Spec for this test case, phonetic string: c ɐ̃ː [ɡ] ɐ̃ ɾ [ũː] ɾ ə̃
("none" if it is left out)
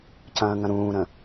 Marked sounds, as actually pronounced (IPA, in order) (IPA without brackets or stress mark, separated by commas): ŋ, ũː